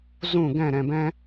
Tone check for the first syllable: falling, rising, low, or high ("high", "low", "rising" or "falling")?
falling